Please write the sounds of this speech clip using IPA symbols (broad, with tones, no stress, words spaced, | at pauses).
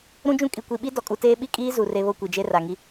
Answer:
ɾũ˦d͡ʒũ˦ kʼi˨kʷi˨ɓi˦ dɔ˨kʼu˨teː˦ ɓi˦kʼiː˦zu˨ re˦βo˦ kʷi˨d͡ʒe˦ ra˨ŋi˦